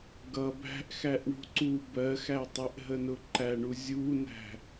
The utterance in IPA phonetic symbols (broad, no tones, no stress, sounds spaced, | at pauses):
ɡ ʌ b æ̤ ʔ x æ ʔ ɳ ṳ ǀ u b ɜ x æ tˤ ɪ ʔ ɦ ə n ʊ ǃ æ ɳ u zʲ u n æ̤